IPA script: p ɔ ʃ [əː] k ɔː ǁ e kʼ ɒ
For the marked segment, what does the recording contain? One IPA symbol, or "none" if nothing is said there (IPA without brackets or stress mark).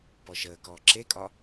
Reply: əː